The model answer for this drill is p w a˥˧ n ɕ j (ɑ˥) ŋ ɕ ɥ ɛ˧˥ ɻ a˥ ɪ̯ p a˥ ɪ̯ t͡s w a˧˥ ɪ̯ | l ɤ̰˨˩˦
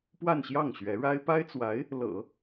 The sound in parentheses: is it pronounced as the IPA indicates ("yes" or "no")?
no